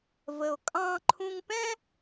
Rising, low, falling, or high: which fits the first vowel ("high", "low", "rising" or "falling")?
low